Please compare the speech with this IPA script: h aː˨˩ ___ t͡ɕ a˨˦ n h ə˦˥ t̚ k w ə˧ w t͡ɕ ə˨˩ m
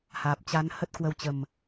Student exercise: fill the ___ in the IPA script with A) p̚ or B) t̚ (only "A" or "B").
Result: A